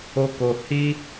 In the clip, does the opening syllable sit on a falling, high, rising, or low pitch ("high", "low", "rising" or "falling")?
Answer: high